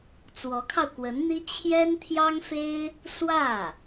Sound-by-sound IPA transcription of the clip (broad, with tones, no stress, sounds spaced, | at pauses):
t͡s w ɔ˧˥ kʰ ɑ˧ ʊ̯ k w ə˧˥ n n̪ i˥ t͡ɕʰ j ɛ˥ n t̪ʰ j ɑ˥ ŋ f e˥ ɪ̯ | s w ä˥˩